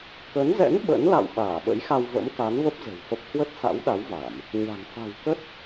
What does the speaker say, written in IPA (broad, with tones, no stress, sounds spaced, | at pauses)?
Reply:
k ə˨˦ n z ɛ̰˧˥ n ɓ ə̰˧˥ n l a̰˧˨ w ɓ aː˧˩ ɓ ə̰˧˥ j x a˧ w v ə̰˧˥ m k a˨˦ n v ə˦˥ p̚ z ə̤˨˩ w f ə˦˥ p̚ h w ə˦˥ t̚ s a̰˧˥ w ɗ a˨˦ w v a˧˩˨ m | ɲ a̤˨˩ n f a̤˨˩ w k ə˦˥ t̚